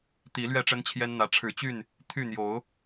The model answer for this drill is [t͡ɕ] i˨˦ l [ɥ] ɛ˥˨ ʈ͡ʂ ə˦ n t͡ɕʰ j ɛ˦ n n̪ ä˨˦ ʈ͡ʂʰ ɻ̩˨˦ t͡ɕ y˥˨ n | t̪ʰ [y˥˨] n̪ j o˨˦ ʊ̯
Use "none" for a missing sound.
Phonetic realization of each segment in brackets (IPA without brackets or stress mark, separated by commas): t̪, ɥ, y˥˨